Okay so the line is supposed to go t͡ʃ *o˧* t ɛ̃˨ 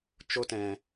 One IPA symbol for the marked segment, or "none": o˧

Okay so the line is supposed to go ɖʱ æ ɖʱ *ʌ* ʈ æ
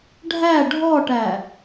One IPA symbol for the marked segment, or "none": ɔ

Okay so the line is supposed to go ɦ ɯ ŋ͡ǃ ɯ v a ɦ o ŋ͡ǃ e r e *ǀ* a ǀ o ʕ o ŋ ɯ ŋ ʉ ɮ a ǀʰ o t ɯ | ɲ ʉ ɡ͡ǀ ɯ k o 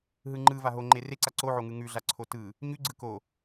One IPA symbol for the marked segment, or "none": ǀ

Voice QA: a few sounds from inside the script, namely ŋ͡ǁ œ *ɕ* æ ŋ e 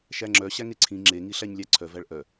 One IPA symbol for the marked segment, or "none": ɕ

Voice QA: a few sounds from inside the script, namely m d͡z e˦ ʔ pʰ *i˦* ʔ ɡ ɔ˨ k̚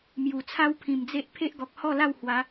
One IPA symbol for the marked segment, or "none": e˦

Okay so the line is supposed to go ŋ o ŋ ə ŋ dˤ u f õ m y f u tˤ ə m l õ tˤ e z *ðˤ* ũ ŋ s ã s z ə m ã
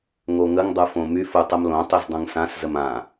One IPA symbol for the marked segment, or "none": dˤ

